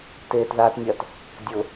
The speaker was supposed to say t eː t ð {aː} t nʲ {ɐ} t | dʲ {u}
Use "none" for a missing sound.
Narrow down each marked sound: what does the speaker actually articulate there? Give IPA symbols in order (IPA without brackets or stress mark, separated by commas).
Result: aː, ɐ, ʊ